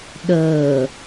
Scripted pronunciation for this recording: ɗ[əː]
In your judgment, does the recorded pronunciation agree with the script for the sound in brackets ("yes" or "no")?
yes